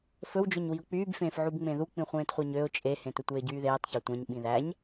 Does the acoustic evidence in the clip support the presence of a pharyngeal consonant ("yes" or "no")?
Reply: yes